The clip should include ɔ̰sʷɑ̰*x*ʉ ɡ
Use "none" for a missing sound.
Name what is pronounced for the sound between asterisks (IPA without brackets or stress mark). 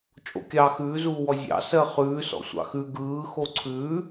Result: x